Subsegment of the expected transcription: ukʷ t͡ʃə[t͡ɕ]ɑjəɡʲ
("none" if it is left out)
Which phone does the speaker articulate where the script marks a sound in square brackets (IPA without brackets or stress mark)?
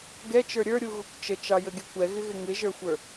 t͡ʃ